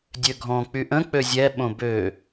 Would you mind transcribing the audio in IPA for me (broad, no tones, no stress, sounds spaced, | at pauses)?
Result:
dʲ ø ɡʱ ɔ̃ k͡p y ʔ ə̃ k͡p ø zʲ ɛ ɓ õ b ø